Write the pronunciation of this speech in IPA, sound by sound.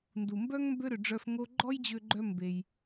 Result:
n d u˩ m b œ˥ ŋ m b ø˥ ɾ ø˩ ɖ͡ʐ œ˧ f ŋ o˥ ɡ͡ǃ ɔ˥ j d͡ʑ ø˧ ɡ͡ǃ œ˧ m b e˩ j

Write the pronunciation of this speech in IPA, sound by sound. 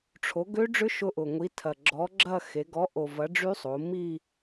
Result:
ʈ͡ʂʰ o˨˥ ɡ ø˦˥ ɖ͡ʐ ʏ˦˥ ʃ ʊ˦˥ ʔ ʊ˨˩ ŋʷ i˨˥ tʰ ɐ˨˩ ɡ͡ǁ ɔ˨˥ ɡ͡ǁ ɐ˥˧ x e˩˧ ɡ ɔ˨˥ ʔ o˨˩ v ɐ˨˥ ɖ͡ʐ y˦˥ sˤ o˩˧ m i˥˧

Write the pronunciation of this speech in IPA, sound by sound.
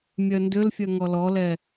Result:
mʲ œ n d ʏ l fʲ œ ŋ ɔ l ɔ l ɛ

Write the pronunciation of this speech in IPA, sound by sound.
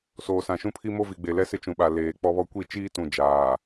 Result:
s oː˨ s ã˨ ʃ ũ˦ pʰ i˦ m o˦ v i˨ ɡ͡b e˨ l ɛ˦ s ɪ˦ t͡ʃ ũ˨ ɓ a˨ l eː˨ k͡p ɔ˦ β ɔ˦ kʷ i˦˨ t͡ʃ iː˦ t ũ˨ d͡ʒ aː˨

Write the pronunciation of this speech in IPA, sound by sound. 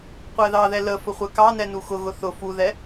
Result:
qʷ æ ð ɑ ð ɛ l ə f ʊ χʷ ɛ k ɑ n ɛ n u x ʊ ɣ ʊ θ ʊ f u ð ɛ

